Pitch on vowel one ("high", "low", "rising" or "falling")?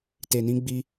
low